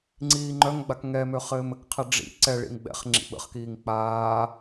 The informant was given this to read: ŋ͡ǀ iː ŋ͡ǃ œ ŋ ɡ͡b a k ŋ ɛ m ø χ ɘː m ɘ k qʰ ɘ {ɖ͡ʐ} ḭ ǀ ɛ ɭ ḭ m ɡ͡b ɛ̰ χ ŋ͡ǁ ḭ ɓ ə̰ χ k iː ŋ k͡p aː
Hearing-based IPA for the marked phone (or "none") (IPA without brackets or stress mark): ɖ͡ʐ